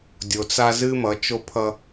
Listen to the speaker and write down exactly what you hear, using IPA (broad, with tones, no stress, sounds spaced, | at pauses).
dʲ o˨ t͡s a˦ z ɨ˦ m ʌ˨˦ t͡ʃ o˦ pʰ ʌ˦